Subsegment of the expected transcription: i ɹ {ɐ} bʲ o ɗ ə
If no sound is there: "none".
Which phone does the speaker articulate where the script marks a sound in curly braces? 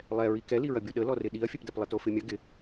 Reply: ɐ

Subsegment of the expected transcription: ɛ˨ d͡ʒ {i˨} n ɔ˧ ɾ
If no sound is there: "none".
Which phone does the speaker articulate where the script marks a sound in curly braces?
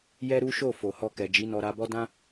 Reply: i˨˦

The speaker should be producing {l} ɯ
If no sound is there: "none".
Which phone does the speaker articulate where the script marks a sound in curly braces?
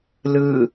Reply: l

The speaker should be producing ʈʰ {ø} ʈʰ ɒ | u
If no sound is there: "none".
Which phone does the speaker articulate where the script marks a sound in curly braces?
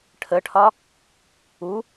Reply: ə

